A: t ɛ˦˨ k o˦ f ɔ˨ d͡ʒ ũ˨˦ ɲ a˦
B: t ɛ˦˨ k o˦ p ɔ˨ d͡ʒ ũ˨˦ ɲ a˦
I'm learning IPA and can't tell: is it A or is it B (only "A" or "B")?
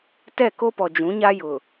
B